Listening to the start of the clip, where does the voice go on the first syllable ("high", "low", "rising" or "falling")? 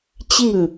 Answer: falling